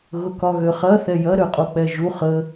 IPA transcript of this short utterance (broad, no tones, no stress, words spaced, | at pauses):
ɣʊkɒɣøχɐ θɛjɐ ɾøqʼok͡pɛʒu χə